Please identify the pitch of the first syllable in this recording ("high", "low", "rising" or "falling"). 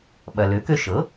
low